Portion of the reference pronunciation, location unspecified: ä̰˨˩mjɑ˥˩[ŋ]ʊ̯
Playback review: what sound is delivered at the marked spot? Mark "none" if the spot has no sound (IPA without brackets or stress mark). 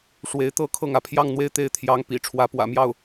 none